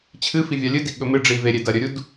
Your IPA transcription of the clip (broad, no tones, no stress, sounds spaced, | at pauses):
t͡ɕʰ ɨ f i vʲ a lʲ ɨ d i ɠ ɵ m ɨ ɖ͡ʐ i v e ɾʲ e d ɐ ɾʲ ɵ ɾʲ u d